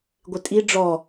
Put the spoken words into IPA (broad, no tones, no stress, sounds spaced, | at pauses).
ɡʷ ɪ tʼ i ɖ͡ʐ ɔ